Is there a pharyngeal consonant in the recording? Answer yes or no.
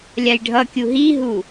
no